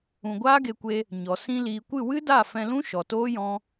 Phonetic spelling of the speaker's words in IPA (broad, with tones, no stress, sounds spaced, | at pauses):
ũ˨ ɡʷ aː˦ ɡ e˧ kʷ e˧ | ɲ ɔ˨ s ĩ˧ l iː˨ kʷ ɨ˦˨ w ɨ˦ d a˦˨ f ɛ̃˧ l ũ˦ ʃ ɔ˨ t oː˦ j ɔ̃˦